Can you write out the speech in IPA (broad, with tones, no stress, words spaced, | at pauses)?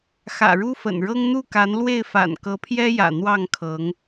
xä̰˨˩ɻu˦fə̰˨˩nɻɤ˦ŋ n̪u˥˨ka˨˦nlwe˥˨ɪ̯ fa̰˨˩nkɤ˨˦ pʰjɛ˦jä̰˨˩ n̪wɑ˥˨ŋkʰɤ˨˦ŋ